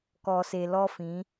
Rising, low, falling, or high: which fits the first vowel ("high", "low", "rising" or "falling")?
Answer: low